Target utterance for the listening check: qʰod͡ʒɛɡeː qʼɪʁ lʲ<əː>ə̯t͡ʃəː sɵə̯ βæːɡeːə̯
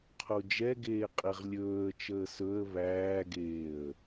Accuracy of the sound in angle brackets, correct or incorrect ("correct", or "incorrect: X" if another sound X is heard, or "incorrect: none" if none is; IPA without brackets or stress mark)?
incorrect: ɵː